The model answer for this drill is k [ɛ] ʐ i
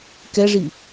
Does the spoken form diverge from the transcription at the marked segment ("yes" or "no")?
no